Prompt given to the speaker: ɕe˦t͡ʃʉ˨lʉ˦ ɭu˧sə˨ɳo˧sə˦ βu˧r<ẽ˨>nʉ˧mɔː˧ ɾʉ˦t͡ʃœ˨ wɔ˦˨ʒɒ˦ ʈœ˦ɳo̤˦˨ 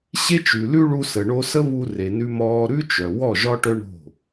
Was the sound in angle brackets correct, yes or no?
no